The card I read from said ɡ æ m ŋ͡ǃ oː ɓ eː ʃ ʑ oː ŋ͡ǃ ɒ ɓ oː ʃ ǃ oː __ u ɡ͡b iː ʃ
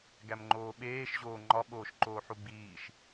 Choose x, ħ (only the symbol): ħ